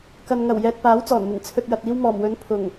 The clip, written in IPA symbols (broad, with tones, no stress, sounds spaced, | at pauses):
k ɐ˨ n ŋ ɐ˨˩ w j ɛː˨ t̚ p aː˨˥ w t͡s ɔː˨˩ n m ɪ˨˩ ŋ t͡sʰ ɵ˨ t̚ j ɐ˨ t̚ iː˧ w m ɔː˨˩ m w ɵ˨˥ n pʰ ʊ˨˩ ŋ